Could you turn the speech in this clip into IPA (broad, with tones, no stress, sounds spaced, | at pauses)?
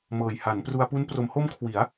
m ɤː˨˩ j h a˩˦ n p r u˧ a̯ p u˦˥ n p r o˩˦ m h o˦˥ m kʰ w i˩˦ a̯